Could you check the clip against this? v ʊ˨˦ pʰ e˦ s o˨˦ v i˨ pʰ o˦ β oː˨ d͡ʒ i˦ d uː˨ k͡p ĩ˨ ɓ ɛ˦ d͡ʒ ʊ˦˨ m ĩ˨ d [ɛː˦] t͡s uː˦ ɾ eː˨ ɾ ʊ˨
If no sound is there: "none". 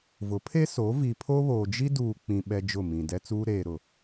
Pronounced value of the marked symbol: ɛ˦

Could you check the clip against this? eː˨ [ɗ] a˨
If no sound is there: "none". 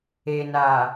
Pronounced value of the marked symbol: n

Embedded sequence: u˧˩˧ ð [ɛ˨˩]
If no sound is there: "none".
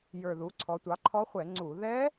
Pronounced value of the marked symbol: ɛ˦˥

